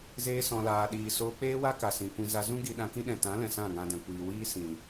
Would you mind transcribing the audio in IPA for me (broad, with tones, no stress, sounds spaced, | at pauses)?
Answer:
z eː˧ s ɔ̃˨ l aː˨ ɗ iː˨ s oː˧ k͡p eː˦ w a˦ k a˨ s ĩ˨ kʷ ĩ˧ z a˧ z ũ˦ ɡ i˧ ɗ ã˧ k ĩ˦ ɗ ɛ̃˨ t ã˨˦ l ɛ̃˨ s ã˦˨ ŋ ã˧ d ɛ̃˨ kʷ iː˨ w iː˦ s ĩ˨